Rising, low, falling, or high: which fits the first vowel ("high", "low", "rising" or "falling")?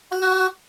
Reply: high